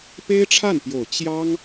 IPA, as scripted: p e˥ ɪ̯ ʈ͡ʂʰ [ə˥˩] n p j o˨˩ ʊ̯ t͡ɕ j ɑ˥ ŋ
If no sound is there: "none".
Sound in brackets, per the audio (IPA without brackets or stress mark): a˥˩